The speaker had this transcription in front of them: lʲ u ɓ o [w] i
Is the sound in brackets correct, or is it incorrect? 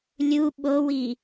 correct